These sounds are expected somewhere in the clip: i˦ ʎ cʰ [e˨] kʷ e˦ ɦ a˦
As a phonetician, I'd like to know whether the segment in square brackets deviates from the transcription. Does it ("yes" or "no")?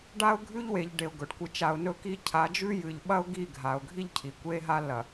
yes